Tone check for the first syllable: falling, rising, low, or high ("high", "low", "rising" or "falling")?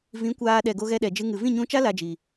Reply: rising